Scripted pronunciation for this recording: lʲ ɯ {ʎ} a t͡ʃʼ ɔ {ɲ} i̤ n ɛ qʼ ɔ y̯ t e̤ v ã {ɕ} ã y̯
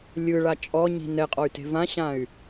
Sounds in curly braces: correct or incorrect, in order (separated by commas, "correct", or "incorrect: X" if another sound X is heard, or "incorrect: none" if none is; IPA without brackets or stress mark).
incorrect: ɭ, correct, correct